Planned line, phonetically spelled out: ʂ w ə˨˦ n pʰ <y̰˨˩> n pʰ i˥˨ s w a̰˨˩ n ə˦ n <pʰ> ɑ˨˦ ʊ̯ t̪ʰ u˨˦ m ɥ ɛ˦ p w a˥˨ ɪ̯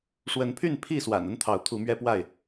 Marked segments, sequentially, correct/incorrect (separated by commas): incorrect, incorrect